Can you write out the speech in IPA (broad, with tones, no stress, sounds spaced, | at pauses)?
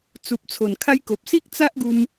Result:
t͡s u˨ p̚ t͡sʰ o˨˩ n kʰ a˧ j k o˨ p̚ s i˦ k̚ t͡s a˦ ʔ ɡ u˧ m